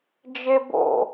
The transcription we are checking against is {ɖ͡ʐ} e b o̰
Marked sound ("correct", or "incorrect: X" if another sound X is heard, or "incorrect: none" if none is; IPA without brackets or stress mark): incorrect: d͡ʒ